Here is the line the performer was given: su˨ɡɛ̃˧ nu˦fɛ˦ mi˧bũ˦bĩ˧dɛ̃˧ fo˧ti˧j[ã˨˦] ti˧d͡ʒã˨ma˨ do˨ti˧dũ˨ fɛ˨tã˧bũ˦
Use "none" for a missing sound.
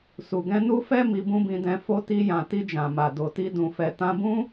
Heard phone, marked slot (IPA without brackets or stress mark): ã˨